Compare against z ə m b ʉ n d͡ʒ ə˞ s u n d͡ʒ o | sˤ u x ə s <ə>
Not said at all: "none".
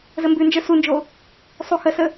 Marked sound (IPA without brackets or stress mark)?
ə